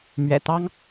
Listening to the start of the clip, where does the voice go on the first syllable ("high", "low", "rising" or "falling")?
low